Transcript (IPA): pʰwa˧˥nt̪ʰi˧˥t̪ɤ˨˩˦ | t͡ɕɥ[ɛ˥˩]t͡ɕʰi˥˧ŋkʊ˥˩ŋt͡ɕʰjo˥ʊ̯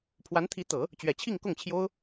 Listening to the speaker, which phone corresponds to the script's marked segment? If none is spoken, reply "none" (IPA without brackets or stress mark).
ɛ˨˩